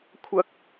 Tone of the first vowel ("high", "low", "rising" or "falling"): high